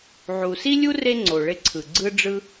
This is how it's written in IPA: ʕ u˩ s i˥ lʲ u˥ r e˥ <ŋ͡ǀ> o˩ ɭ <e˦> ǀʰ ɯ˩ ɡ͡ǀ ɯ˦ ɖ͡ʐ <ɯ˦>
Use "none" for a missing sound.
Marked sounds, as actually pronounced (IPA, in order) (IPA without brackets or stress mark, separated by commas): ŋ͡ǀ, e˦, ɯ˦